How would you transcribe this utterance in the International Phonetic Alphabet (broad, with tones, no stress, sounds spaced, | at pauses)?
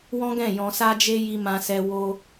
w ɔ̃˦ ɡ ɛ̃˦˨ j ɔ̃˧ s a˦ d͡ʒ e˦ j i˦ m ã˦ s ɛ˦ w o˦